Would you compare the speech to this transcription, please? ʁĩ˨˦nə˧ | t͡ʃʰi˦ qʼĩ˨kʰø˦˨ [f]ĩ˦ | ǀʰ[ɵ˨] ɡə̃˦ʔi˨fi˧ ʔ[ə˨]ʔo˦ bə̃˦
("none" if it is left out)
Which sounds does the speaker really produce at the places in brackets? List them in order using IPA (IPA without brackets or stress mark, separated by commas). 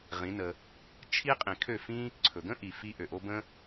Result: f, ɵ˨, ø˨